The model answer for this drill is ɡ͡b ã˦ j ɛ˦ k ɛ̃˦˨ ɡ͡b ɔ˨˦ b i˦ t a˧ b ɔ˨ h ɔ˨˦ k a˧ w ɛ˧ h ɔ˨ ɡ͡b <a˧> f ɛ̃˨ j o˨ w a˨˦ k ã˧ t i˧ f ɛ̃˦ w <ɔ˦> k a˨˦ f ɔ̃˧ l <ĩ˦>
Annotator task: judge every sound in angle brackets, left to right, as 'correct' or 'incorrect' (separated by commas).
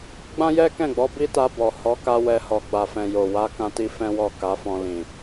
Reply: incorrect, incorrect, incorrect